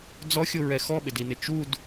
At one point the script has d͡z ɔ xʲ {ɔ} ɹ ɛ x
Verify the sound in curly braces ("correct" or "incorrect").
incorrect